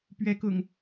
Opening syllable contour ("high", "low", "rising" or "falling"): rising